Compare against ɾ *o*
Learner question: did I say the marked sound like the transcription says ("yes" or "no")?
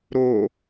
yes